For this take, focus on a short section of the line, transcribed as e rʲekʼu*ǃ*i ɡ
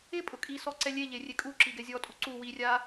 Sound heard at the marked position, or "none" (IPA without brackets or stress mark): ǁ